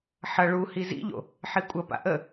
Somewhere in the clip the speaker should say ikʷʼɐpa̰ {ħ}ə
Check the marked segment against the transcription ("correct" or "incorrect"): incorrect